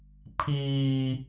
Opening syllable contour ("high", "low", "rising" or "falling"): high